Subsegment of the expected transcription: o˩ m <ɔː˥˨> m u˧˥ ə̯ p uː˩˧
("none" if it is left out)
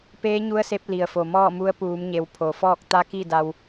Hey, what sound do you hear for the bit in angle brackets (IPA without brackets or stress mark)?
ɔː˥˨